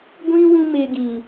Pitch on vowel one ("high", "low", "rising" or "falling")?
high